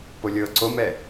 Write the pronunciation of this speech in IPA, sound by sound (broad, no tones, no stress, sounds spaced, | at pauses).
p o lʲ ɤː ǀ o m ɛ